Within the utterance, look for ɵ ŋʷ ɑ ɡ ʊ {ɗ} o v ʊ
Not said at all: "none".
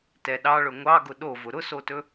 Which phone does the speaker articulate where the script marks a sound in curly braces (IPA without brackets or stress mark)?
ɗ